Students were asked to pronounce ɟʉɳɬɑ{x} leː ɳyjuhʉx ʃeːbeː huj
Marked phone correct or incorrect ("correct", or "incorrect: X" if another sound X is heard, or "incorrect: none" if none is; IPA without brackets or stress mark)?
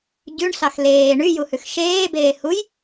correct